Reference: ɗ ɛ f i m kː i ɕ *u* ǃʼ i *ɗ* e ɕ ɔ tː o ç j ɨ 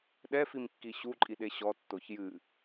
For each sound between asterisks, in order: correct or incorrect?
correct, correct

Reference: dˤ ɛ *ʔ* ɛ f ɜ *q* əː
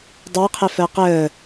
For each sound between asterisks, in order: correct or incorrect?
incorrect: qʰ, correct

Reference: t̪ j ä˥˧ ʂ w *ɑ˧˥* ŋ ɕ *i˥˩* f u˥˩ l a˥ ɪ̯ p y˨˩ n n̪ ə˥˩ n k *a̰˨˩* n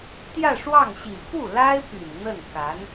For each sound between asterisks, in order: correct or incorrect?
incorrect: ɑ˥˩, incorrect: i˨˩, incorrect: a˧˥

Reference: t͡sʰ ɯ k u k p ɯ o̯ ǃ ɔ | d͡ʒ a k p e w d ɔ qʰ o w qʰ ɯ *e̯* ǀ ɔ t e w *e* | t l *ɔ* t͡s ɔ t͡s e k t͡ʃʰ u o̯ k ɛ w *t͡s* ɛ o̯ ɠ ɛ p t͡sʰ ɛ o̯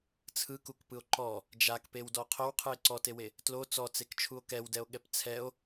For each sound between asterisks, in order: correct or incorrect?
correct, correct, incorrect: o, incorrect: d

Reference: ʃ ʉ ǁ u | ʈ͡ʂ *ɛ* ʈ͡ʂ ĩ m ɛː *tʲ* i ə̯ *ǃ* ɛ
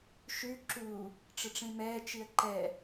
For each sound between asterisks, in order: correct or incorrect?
incorrect: ɘ, incorrect: t͡ʃ, correct

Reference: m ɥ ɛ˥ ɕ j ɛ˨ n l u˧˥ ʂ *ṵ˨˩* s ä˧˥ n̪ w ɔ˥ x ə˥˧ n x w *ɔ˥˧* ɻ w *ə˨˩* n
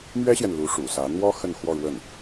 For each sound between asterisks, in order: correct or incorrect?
correct, correct, incorrect: ə˥˩

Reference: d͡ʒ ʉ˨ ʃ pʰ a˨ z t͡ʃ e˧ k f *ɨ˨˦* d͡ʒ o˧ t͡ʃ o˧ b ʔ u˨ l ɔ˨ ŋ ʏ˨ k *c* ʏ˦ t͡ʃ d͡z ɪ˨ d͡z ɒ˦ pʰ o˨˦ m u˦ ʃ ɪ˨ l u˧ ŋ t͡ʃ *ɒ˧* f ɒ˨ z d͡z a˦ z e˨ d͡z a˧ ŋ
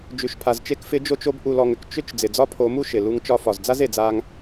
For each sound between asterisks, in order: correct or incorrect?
incorrect: ɪ˨˦, incorrect: t͡ʃ, correct

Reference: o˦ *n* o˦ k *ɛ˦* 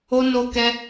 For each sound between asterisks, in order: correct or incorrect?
correct, correct

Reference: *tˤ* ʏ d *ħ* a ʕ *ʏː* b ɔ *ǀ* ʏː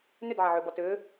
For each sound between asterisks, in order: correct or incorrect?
incorrect: n, incorrect: ʕ, correct, incorrect: t

